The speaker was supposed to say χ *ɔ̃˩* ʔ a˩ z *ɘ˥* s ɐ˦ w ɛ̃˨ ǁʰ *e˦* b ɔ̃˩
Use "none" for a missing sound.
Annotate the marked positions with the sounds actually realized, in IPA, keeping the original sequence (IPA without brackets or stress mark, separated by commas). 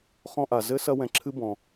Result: ɔ̃˦, ɘ˥, ɨ˦